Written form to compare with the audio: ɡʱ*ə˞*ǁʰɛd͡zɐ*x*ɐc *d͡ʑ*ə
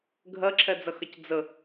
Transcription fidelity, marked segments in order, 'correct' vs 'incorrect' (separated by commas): incorrect, correct, incorrect